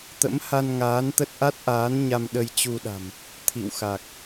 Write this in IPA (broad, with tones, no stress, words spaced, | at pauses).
t̪ə̰˧˥mha˧nŋaː˨˦nt̪ə˦˥t̚ ʔa˦˥t̚ʔaː˨˦n ɲa˧mɗə˧jt͡ɕu˧ɗa̤˨˩m | t̪ʰḭ˧˨wxa˨˩k̚